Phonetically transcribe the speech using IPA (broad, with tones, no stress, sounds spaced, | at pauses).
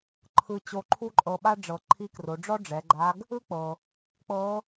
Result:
ǃʰ ɯ˧ t͡ɕ o˧ ǃʰ u˥ ǃʼ ɤ˧ ɓ a˥ ɖ͡ʐ ɤ˩ ǃʰ i˧˥ k r o˩˧ ɖ͡ʐ ɔ˥ ɖ͡ʐ ɛ˩˧ ɡ͡ǃ a˧˥ ɡ | ɯ˥ k͡p ɤ˩ | k͡p ɤ˧˥